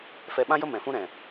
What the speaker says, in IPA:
f ɛ˧ ɓ ã˦ j ə˦ m ɛ̃˨ f ũ˦ ɾ ɛ̃˨

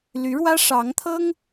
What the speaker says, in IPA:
l y˧˥ ɻ w ä˥ ʂ ɑ˧˥ ŋ t̪ʰ ɤ˥ ŋ

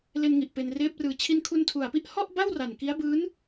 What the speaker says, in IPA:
l e˧ n ŋ i˨˩ ʔ p e˧ n r eː˦˥ p̚ r ɯː˧ t͡ɕʰ i˧ n kʰ u˧ n tʰ u˨˩ a̯ p i˥˩ ʔ h ɔ˥˩ ʔ b a˥˩ w r a˨˩ n k i˦˥ a̯ b ɯː˦˥ n

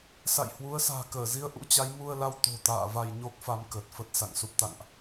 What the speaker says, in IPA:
s a̰˧˨ j h w u˨˦ ə̯ s a̤ː˨˩ k əː˧˩ z i˧ ə̯ ʔ ṵ˧˥ t͡ɕ a˨˦ j m u˧ ə̯ l a˧ w t̪ o̤˨˩ t̪ a̰ː˧˨ v a˧ j ɲ o˦˥ k̚ f a˧ m k əː˨˩ t̚ f ə˦˥ t̚ s a̰˧˨ ŋ s u˦˥ p̚ t̪ a̰˧˨ ŋ ʔ

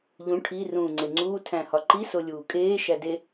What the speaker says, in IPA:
ʎ ũ ʈʰ i r ũː ŋ͡ǀ e ŋ͡ǀ uː tʰ æ̃ h ɒ ǃ i s o lʲ uː kʼ eː ʃ æ d e

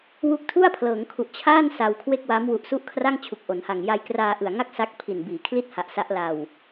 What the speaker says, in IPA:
w u˥˩ k̚ tʰ u˥˩ a̯ pʰ l ɤː˩˦ ŋ kʰ u˨˩ ʔ t͡ɕʰ aː˥˩ n s a˧ w kʰ w e˥˩ k̚ w a˦˥ m w u˨˩ ʔ s u˦˥ ʔ kʰ r a˥˩ ŋ t͡ɕʰ u˨˩ k̚ ʔ o˩˦ n h a˨˩ ŋ j a˧ j k r aː˧ ʔ ɯ˨˩ a̯ ŋ a˥˩ k̚ s a˦˥ k̚ pʰ i˨˩ n b iː˩˦ kʰ l i˦˥ t̚ h a˨˩ ʔ s a˦˥ ʔ l a˧ w

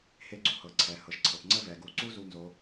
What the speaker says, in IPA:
h e˥ ɡ͡ǀ u˥ h ɤ˩˧ ǀʰ ɛ˩˧ h ɤ˩ ʃ ǀʰ ɤ˩ p ŋ͡ǀ ə˥ v ɛ˩ ɡ u˩˧ ǀ u˥ z u˥ n z o˧˥

